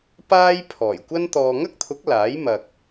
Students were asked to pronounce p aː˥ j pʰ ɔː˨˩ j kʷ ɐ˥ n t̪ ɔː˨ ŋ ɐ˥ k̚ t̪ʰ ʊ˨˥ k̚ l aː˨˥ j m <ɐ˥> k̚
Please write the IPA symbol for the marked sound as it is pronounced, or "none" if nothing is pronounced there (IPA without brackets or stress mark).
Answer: ɐ˨